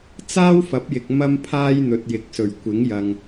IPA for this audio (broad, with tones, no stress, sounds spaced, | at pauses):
t͡s aː˥ w f ɐ˨˥ p̚ j ɪ˨ k̚ m ɐ˧ m pʰ aː˧ j n̪ ɵ˨ t̚ j ɪ˨˥ k̚ s ɵ˨˩ ɥ kʷ ɪ˨˥ ŋ j ɐ˨ ŋ